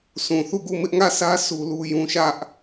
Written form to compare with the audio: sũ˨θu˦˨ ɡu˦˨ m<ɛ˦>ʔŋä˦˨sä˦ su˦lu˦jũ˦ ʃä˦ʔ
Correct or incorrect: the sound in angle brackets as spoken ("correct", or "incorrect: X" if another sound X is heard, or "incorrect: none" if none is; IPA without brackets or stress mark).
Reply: incorrect: ɪ˦